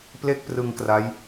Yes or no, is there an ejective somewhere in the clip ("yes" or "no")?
no